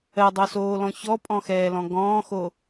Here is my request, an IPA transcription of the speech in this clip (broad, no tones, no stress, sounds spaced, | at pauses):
ɜ dˤ o s oː l ɔ̃ ç ɔ pʼ ɔ̃ x ɛː l ɔ̃ ɡ ɔ̃ː x o